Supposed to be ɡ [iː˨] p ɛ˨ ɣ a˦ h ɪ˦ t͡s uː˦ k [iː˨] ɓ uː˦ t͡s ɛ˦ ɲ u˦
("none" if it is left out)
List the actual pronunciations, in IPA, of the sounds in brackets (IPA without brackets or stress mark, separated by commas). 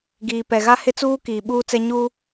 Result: iː˨, iː˨